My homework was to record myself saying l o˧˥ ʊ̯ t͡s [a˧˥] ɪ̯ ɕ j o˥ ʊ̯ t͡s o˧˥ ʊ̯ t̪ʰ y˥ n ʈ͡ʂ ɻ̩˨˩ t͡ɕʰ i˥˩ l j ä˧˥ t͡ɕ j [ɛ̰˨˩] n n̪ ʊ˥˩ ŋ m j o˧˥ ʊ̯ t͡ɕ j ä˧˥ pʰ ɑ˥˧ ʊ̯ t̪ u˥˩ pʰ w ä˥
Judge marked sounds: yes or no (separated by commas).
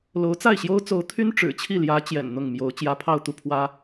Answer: no, yes